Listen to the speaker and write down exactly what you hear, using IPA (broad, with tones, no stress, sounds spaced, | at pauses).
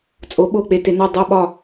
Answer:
t͡sʼ o˩˧ ɓ o˧˩ k͡p e˩˧ t e˩˧ n o˧˩ dˤ o˧˩ ɓ ɒ˧˩